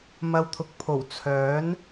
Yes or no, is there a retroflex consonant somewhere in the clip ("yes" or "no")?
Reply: no